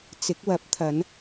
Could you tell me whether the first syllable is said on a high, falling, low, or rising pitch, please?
rising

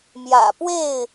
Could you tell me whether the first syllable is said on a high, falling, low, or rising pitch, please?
low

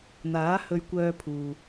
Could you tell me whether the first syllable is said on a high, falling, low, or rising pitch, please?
rising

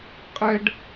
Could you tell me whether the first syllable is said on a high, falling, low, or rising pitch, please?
high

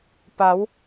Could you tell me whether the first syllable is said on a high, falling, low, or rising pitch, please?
rising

